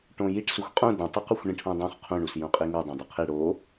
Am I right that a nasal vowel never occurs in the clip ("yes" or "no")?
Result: no